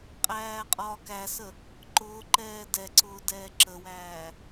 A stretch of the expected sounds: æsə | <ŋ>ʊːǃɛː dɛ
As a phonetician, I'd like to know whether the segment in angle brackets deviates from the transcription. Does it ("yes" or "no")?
yes